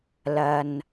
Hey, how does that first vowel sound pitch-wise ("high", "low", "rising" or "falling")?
low